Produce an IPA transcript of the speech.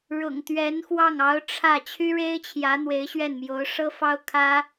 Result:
ɻ ʊ̰˨˩ ŋ t̪ ɥ ɛ˧˥ n x w ɑ˥˩ ŋ ɑ˧˥ ʊ̯ ʈ͡ʂʰ ä˥˩ t͡ɕʰ y˥ ɻ e˥ ɪ̯ t͡ɕʰ j ä˧˥ n̪ w e˧˥ ɪ̯ ɕ ɥ ɛ˥˩ n m j o˧˥ ʊ̯ ʂ ɤ˥ f ɑ˥ ʊ̯ kʰ ä˥

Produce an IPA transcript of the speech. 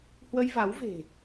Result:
h w ə˧ j v a˨˦ w v e̤˨˩

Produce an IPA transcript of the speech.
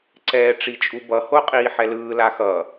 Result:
ǀ ɛː ʈ͡ʂ i t͡ʃʼ u b ʌ h o qʼ iː ħ ɛ l ɯː l a x ʌ

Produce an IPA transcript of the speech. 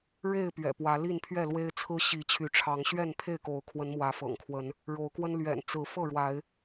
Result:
ɻ e˥˨ ɪ̯ p ɥ ɛ̰˨˩ p w ä˨˦ l i˥˨ n pʰ ɥ ɛ˥˨ l w e˦ ɪ̯ t͡sʰ ɹ̩˦ ɕ i˨˦ t͡ɕʰ y˨˦ ʈ͡ʂʰ ɑ˨˦ ŋ ɕ ɥ ɛ˥˨ n pʰ e˥˨ ɪ̯ k o˨˦ ʊ̯ kʰ w ə˨˦ n m w ä˨˦ f ɤ̰˨˩ ŋ kʰ w ə˨˦ n | ɻ o˨˦ ʊ̯ k w ə˦ n l ɥ ɛ̰˨˩ n t͡s ɹ̩˨˦ f ɤ˥˨ ɻ w a˨˦ ɪ̯

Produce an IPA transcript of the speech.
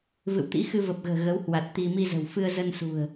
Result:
v ɨ̰˧˨ w t̪ ḭ˧˥ x ɨ˧ v ə˨˩ p̚ ɣ ə̤ː˨˩ ɣ ə˨˦ w h w a˨˩ t̚ t̪ i˧ m i˧ z ə̤˨˩ w f ɨ˧ ə̯ z ə˧ n s ṳ˨˩ ə̯

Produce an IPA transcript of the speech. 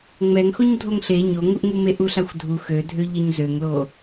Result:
ŋ͡m ɛ ŋ x o ɲ dʱ o ŋ ɬ e ɲ o ŋ u ʔ ŋ u m e ʔ u ɬ a xʷ dʱ u x ø dʱ ø ʎ ə ɲ z ø ŋ l o

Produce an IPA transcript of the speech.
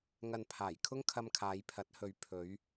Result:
ŋ ɐ˨ n pʰ aː˨˩ j kʰ ʊ˥ ŋ kʰ ɐ˧ m kʰ aː˨˧ j pʰ ɐ˨˥ t̚ h ɵ˨˧ ɥ pʰ ɵ˨˧ ɥ

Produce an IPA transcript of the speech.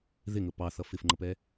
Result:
ð ɪ ŋ ə p ɑ θ ʌ f ɪ f ŋ͡ǃ ə p ɛ

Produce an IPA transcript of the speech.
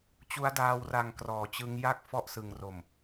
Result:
t͡ɕ u˦˥ a̯ d aː˧ w r a˨˩ ŋ k r ɔː˩˦ t͡ɕ ɯ˦˥ ŋ j a˥˩ k̚ f ɔ˥˩ ʔ s ɯ˨˩ ŋ r o˨˩ m

